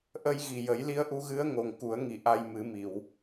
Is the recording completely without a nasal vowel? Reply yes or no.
yes